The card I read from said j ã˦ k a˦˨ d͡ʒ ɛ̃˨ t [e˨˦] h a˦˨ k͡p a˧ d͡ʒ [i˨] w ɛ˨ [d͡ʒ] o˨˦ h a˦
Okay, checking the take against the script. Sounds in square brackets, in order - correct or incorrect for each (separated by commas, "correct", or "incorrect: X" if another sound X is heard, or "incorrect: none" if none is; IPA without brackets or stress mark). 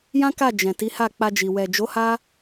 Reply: incorrect: i˨˦, correct, correct